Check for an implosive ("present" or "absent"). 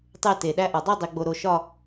present